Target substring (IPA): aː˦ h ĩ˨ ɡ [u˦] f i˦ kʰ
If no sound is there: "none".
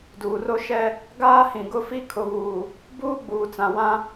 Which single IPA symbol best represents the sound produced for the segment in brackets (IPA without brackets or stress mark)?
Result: ʊ˦